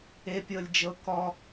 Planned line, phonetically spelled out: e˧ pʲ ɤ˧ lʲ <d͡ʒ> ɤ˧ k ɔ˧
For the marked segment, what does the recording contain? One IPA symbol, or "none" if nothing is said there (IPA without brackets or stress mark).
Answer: d͡ʒ